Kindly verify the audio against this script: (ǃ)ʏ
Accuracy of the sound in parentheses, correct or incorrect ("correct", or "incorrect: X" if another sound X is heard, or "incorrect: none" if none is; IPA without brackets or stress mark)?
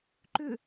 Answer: correct